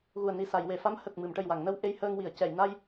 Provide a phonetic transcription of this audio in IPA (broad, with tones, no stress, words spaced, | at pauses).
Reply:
ɣu˨˩ə̯ni˨˩ sa˨˩˨j we˨˩˨fa˧˥mhə˨˩k̚ mɨ˨˩˨m ʈə˨˩jwa˨˩˨ŋnə˧w ʔe˧jhəː˧ŋwi˨˩˨ə̯ cɛ˨˩˨j na˧j